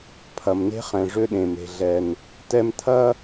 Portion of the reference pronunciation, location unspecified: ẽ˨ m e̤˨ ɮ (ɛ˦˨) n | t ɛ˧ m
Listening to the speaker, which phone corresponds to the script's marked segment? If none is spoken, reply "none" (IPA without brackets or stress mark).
ɛ˨